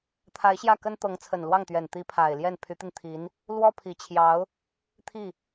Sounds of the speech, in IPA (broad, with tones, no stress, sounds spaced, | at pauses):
t̪ʰ a˧˥ ɪ̯ ɕ j ä˥˩ k ə˥ n t̪ ɤ˧˥ ŋ t͡sʰ ə˨˩ n l w ɑ˥˩ ŋ t̪ ɥ ɛ˨˩ n t̪ i˧˥ pʰ a˨˩ ɪ̯ l j ɛ˥˩ n pʰ y˧˥ t̪ i˧ n t̪ʰ i˧˥ n | l w ɔ˥ pʰ i˨˩ t͡ɕʰ j ɑ˧˥ ʊ̯ | t̪ʰ i˥˩